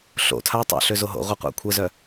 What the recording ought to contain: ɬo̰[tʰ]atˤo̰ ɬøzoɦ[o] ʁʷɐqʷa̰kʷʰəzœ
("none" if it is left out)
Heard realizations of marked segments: tʰ, o̰

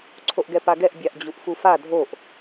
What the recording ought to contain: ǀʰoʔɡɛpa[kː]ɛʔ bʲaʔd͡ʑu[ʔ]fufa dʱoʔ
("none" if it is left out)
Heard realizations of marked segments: ɡ, ʔ

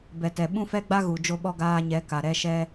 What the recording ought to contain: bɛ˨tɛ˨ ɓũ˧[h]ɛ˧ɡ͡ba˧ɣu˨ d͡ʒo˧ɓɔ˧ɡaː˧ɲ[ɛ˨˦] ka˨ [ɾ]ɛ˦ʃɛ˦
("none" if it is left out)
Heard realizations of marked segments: f, ɛ˨˦, ɾ

